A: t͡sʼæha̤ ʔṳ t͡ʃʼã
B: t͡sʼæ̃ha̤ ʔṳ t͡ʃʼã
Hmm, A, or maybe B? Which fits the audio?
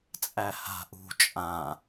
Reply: A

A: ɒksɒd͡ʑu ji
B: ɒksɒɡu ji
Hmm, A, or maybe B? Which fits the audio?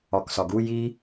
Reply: B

